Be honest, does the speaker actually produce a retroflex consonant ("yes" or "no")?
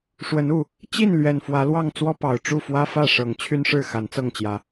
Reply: yes